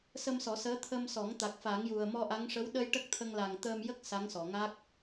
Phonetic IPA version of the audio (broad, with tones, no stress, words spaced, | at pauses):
sə˧msɔ˨˩˦səː˧˥ t̪ʰə˧msɔ˨˩˦ŋ t̪a˨˩k̚fa˨˩˦ŋju˨˩ə̯ mɔ˧ʔa˧˥ŋ ʂə˧˥wɗə˧j ʈə˦˥k̚t̪ʰə˧ŋ la˨˩ŋt̪əː˧m jə˦˥k̚ sa˧˥ŋsɔ˨˩˨ ŋa˦˥k̚